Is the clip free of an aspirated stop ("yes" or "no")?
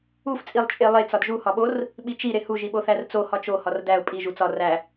yes